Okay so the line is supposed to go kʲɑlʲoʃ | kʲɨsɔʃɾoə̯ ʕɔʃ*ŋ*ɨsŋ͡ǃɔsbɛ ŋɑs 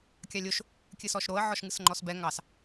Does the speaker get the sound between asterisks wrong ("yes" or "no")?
no